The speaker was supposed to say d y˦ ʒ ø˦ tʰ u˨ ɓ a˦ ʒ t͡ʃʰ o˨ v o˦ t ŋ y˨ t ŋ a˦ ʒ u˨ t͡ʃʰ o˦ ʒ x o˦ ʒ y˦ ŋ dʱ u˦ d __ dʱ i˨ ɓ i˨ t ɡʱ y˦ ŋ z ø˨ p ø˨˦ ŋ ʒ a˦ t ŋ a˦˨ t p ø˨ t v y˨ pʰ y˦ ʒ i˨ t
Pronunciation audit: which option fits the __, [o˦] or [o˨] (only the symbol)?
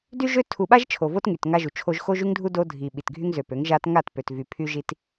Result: o˦